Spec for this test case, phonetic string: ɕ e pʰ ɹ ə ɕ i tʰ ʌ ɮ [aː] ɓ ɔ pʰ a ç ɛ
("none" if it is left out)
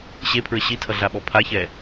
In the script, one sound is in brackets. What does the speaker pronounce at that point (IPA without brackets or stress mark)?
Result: a